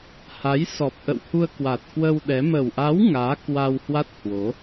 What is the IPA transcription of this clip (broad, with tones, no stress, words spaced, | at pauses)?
ha˨˦jsɔ˨˩p̚ ʔə̰˧˨whu˧ə̯kwa˨˩t̚ kwə˧w ɗɛ˨˦ mə˨˩wʔa˨˦w ŋaː˨˦ kwa˧whwa˦˥t̚ hwo˨˦